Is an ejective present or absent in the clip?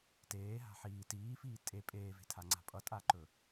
present